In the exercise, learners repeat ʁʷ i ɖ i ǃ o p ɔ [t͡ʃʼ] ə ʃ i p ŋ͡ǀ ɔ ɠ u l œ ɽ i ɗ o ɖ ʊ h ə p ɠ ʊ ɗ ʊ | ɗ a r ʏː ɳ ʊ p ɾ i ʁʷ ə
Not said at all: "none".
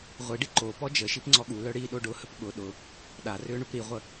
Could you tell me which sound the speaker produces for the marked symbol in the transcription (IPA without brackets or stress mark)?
d͡ʒ